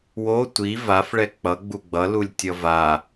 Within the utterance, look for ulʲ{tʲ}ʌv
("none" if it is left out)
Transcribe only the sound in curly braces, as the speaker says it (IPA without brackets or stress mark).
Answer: tʲ